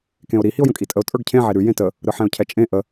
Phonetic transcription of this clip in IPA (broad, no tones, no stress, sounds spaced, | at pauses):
k ẽ ʊ̯ ɾ i h i ʊ̯ j ə̃ kʼ i tʼ ə ʊ̯ tʼ ə˞ ɡ cʰ ẽ ʕ e ɾ ʉ j ẽ t ə | ɾ ɯ ħ ɛ̃ ʊ̯ cʰ ɛ t͡ʃʼ ẽ ʔ ə